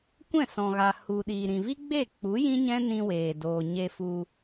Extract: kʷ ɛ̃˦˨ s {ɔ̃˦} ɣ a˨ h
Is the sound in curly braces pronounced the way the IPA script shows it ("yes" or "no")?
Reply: no